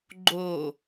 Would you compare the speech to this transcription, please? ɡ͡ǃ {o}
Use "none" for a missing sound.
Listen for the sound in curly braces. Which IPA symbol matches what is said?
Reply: o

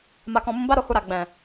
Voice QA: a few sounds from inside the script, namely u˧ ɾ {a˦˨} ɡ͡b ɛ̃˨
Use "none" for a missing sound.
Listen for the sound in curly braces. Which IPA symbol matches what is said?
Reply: a˨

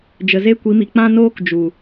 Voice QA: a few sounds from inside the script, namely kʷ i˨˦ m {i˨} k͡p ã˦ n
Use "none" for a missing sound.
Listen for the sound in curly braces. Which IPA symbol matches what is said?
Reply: i˨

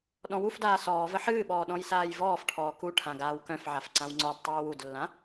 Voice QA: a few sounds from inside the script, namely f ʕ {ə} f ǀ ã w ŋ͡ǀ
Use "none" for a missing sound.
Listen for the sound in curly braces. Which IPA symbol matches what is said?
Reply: a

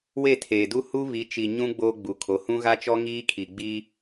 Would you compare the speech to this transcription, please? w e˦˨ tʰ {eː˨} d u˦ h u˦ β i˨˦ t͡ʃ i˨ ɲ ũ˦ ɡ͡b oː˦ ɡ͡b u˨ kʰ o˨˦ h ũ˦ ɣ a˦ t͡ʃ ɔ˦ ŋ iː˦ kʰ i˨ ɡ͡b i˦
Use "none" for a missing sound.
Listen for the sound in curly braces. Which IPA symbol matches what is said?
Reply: eː˨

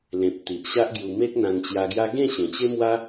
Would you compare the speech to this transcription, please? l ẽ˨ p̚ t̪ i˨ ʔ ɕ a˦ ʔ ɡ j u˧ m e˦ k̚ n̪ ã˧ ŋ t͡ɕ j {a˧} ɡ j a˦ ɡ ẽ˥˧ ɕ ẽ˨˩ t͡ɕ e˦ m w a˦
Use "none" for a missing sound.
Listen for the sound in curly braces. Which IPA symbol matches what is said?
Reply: a˧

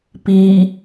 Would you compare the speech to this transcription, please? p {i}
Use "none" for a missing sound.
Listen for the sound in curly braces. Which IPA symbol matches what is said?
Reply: i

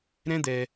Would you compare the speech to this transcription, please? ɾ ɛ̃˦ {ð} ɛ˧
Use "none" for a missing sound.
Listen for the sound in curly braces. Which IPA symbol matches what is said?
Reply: d̪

